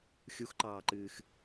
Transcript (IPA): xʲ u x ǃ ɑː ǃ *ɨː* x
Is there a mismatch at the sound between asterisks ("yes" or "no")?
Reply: no